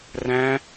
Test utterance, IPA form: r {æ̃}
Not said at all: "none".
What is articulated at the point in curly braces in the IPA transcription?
æ̃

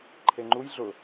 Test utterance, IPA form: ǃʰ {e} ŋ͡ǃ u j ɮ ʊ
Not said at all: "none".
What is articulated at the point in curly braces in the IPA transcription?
e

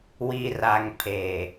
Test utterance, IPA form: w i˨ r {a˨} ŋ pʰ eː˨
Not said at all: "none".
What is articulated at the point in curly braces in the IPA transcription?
a˨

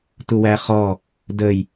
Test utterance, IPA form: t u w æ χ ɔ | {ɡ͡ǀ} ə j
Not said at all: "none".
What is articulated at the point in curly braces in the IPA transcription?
d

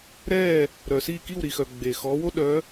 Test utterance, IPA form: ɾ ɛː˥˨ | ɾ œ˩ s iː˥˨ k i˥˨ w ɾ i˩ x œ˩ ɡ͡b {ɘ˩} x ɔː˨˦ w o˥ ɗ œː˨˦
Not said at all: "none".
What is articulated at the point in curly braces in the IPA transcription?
e˩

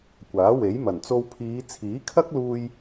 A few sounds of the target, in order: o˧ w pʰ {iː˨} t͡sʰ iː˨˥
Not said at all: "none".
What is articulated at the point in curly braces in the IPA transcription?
iː˨˧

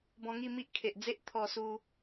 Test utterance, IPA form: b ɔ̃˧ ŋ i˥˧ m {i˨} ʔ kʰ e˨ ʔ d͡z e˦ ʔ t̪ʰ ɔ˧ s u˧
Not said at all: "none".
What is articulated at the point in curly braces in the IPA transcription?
i˦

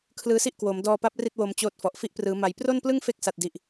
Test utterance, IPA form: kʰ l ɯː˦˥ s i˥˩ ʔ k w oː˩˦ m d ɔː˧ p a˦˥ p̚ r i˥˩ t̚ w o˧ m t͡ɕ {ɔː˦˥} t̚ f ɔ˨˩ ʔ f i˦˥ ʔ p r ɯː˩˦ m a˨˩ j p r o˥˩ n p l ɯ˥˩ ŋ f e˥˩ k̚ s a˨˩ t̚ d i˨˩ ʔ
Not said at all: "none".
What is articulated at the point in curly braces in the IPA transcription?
oː˦˥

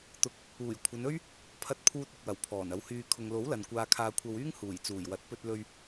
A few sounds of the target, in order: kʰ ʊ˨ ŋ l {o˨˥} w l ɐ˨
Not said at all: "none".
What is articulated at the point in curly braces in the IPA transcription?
o˨˥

